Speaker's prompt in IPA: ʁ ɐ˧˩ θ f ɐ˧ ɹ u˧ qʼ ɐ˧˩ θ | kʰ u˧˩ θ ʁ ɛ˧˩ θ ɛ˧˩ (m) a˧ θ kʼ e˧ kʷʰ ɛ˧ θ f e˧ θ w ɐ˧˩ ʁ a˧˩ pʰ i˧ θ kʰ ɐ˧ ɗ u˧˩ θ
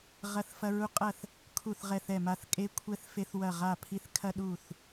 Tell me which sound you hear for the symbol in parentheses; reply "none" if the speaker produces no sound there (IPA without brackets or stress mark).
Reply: m